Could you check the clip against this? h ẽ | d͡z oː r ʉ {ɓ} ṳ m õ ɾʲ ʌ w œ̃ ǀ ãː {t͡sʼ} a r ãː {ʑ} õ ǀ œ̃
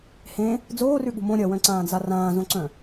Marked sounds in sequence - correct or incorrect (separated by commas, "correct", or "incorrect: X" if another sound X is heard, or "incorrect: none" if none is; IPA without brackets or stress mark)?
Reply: incorrect: ɠ, incorrect: d͡z, incorrect: z